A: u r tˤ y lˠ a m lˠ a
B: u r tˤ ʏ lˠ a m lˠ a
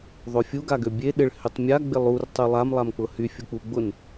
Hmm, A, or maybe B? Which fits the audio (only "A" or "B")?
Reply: A